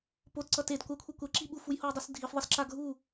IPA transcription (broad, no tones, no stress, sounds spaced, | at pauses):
p o t ǀ ʌ t e d kʷ a kʷʰ ɯ kʷ ɛ ǁ i ɓ u f u j h o j dˤ u s dʱ i f ðˤ ʌ s ǁ a ɡʱ u